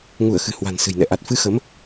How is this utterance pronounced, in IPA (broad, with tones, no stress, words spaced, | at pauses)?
ŋu˧˩ə̯xɨ̤˨˩ hwa̤˨˩nsɨ̤˨˩jnɛ̰˧˨ ʔa˨˩t̚fɨ˧xə˨˦m